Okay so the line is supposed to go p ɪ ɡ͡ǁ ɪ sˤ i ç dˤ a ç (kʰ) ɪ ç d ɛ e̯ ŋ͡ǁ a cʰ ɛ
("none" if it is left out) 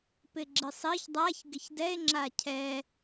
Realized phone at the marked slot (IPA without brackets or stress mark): ɡ